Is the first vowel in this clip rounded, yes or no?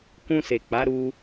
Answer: yes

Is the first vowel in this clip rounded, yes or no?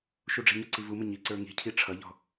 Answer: yes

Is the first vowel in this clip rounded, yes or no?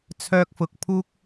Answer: yes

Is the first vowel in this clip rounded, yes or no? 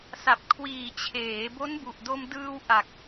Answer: no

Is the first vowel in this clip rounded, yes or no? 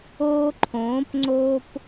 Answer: yes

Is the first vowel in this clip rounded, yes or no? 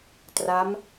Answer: no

